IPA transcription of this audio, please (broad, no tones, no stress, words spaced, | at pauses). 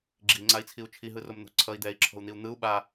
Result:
ɡ͡ǁiŋ͡ǀai̯t͡sʰiu̯ t͡ʃʰiɦɯrom n̪o̤ǀʰʌi̯ d̪ɛi̯ǁʰo̤u̯n̪iu̯ n̪ɯu̯ ɓa